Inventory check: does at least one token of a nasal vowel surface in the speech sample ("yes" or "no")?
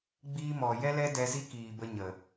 no